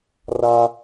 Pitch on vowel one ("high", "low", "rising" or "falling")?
high